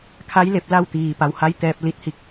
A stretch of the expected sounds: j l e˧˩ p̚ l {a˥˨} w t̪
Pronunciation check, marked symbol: correct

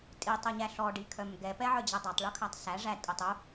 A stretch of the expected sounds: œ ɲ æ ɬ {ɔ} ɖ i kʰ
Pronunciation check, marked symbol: correct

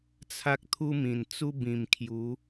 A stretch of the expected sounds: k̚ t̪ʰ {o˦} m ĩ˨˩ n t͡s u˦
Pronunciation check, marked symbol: incorrect: u˦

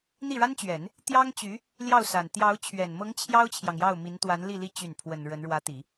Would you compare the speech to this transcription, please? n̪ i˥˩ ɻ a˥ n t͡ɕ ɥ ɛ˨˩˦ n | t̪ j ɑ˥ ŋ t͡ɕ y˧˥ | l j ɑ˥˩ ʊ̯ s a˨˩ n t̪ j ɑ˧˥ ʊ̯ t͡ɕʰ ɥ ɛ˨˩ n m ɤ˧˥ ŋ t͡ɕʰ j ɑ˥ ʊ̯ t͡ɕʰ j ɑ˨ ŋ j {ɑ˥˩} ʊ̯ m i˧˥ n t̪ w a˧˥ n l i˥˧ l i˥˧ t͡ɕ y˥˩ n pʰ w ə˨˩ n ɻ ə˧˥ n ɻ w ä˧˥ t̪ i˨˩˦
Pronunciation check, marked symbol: correct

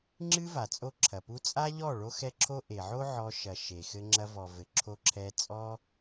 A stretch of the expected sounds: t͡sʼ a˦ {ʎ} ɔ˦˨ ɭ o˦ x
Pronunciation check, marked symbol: correct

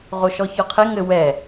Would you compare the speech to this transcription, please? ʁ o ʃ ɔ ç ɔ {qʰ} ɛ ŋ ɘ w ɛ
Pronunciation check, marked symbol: correct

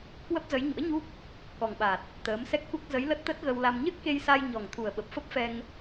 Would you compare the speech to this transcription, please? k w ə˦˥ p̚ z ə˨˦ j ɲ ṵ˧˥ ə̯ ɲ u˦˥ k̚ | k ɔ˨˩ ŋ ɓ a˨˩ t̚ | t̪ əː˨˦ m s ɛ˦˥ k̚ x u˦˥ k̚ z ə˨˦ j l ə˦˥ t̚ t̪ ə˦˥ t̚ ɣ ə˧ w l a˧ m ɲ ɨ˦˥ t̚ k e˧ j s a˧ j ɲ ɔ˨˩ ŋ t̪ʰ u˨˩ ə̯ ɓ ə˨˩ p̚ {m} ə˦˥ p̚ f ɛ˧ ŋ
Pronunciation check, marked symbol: incorrect: f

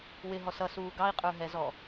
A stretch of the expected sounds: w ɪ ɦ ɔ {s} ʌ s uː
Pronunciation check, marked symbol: correct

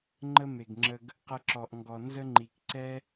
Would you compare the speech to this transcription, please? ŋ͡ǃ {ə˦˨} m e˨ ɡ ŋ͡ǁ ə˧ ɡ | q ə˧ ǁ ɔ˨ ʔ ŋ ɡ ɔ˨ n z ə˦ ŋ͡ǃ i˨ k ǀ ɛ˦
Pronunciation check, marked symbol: incorrect: ə˦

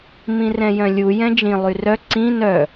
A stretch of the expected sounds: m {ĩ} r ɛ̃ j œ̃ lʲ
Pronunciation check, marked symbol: correct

